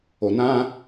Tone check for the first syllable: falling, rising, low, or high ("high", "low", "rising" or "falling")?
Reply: low